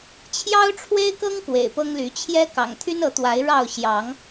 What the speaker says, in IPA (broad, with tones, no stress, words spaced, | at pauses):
t͡ɕʰjɑ˦ʊ̯ʈ͡ʂʰwe˦ɪ̯kɤ˦ŋ kwḛ˨˩ɪ̯pɤ˦ŋly˨˦ t͡ɕʰjɛ˦ kɑ̰˨˩ŋt̪ʰy˦nɤ˨˦t̪wa˨˦ɪ̯ ɻɑ˥˨ʊ̯ ɕjɑ˨˦ŋ